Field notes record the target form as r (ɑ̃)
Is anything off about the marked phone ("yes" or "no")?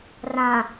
yes